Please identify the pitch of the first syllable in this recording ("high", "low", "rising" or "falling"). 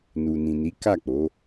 low